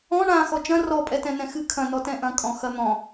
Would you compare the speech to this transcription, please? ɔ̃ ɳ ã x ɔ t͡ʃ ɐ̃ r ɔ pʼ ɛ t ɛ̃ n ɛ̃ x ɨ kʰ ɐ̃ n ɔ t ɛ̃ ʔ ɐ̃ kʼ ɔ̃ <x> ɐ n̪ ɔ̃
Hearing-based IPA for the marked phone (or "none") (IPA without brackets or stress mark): x